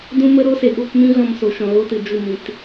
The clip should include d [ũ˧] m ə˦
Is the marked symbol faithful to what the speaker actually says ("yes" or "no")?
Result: no